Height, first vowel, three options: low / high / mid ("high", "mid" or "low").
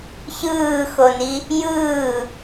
high